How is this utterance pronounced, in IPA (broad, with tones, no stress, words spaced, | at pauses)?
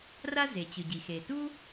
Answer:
ra˥ze˩ t͡ɕɯ˩ɟi˩xe˩ tu˥